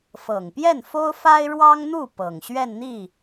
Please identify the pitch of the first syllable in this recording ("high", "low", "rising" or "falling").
low